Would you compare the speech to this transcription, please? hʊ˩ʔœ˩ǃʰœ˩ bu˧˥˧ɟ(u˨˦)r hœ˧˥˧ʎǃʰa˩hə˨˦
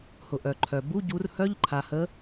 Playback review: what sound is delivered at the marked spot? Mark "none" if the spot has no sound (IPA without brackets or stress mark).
u˨˦